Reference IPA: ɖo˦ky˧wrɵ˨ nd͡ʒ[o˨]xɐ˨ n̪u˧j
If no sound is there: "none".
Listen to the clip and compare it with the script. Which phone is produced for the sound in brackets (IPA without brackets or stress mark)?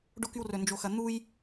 o˨